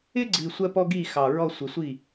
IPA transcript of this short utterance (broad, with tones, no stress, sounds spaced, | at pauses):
ɪ˥ ɡ͡ǀ i˨˩ sʷ ɜ˥ p ɔ˥ ɡ i˥˩ x ɑ˨˩ ɹ ɔ˥˧ sʷ ɪ˨˩ sʷ i˥˩